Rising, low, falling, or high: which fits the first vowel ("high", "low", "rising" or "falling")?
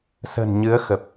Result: low